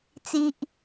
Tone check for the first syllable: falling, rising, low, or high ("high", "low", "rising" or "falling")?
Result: high